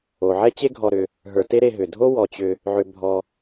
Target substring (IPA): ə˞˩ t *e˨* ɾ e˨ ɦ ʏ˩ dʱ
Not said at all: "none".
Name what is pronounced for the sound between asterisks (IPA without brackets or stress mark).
e˦